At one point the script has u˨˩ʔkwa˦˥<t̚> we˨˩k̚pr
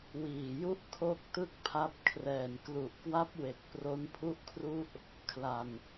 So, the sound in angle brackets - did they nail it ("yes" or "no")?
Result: no